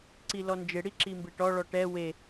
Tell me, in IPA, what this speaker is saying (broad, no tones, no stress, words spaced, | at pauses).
ǀilɔnd͡ʒe ɽiǁimbeʈɔ ɭɔʈɛ we